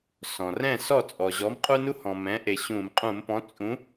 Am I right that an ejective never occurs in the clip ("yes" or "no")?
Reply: no